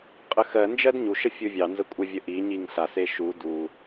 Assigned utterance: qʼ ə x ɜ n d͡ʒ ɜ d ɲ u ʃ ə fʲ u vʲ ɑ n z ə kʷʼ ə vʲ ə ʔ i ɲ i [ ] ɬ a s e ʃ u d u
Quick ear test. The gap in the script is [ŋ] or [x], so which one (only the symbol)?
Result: ŋ